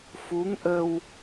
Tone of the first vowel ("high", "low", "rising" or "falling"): rising